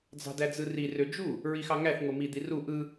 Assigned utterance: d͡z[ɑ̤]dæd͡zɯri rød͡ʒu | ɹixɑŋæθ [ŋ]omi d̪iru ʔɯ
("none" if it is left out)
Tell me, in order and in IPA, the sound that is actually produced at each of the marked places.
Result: ɑ̤, ŋ

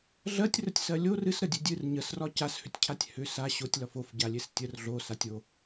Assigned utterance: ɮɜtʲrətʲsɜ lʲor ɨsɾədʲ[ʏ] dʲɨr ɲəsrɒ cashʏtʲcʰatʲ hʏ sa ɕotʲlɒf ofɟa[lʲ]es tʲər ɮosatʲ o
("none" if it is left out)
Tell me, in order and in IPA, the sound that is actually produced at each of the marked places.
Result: ɨ, lʲ

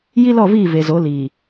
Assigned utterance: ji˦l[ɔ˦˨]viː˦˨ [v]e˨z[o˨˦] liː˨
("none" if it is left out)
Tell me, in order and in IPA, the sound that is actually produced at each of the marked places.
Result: ɔ˦˨, v, o˨˦

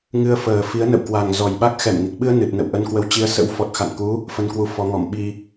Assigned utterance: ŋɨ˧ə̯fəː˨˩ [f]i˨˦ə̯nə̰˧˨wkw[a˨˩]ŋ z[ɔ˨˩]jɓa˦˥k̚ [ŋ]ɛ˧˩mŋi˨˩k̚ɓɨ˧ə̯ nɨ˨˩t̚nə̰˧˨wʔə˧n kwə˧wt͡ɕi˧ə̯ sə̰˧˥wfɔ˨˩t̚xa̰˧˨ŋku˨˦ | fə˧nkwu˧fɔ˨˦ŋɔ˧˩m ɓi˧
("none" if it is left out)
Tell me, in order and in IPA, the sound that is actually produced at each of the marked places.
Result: f, a˨˩, ɔ˨˩, x

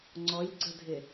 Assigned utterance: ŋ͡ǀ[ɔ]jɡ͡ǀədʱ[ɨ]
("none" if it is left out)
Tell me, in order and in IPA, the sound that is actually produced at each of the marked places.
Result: ɔ, ɪ

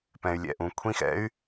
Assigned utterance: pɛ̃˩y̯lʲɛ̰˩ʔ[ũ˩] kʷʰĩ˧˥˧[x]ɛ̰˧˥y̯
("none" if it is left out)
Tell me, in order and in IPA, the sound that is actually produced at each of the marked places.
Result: ũ˩, x

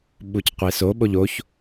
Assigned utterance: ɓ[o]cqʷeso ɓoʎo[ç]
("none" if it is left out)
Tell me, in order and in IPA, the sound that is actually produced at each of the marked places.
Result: u, ç

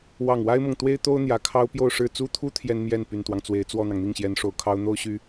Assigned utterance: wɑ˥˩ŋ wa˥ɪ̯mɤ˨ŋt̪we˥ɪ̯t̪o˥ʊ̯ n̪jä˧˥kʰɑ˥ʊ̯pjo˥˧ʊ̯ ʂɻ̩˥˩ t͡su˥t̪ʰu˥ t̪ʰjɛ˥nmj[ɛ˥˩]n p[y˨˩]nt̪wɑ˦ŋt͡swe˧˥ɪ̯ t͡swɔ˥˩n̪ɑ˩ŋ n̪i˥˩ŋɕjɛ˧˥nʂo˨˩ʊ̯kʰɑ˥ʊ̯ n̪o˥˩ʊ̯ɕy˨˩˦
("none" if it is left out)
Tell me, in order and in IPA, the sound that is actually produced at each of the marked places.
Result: ɛ˥˩, y˨˩

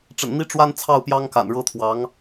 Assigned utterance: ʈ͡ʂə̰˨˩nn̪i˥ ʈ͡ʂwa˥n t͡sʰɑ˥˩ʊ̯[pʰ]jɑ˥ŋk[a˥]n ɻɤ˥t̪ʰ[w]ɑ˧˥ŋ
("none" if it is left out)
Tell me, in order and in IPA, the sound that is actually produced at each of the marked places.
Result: p, a̰˨˩, w

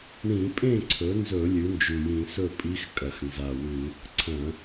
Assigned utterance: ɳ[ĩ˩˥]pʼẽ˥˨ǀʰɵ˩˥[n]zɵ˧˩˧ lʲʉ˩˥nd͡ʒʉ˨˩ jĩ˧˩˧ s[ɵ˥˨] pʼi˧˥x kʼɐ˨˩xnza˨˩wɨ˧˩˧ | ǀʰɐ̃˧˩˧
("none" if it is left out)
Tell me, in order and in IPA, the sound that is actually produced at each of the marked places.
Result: ĩ˧˩˧, n, ɵ˥˨

